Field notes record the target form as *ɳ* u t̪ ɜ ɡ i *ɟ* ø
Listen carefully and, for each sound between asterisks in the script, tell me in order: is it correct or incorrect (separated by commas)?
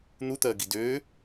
incorrect, incorrect